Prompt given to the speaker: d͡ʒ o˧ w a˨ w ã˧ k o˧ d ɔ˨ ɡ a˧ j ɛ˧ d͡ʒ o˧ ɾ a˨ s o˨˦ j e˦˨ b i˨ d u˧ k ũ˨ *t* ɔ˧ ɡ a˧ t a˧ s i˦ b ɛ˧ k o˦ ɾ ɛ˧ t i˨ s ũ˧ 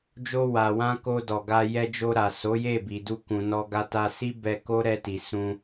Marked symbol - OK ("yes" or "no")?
no